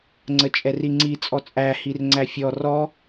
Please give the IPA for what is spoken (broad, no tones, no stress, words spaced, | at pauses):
ŋ͡ǀət͡ʃʼɛriŋ͡ǀi t͡sʼɔt͡sʼæ hirŋ͡ǀæfʲɔ rɔ